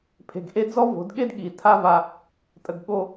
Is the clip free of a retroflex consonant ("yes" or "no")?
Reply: yes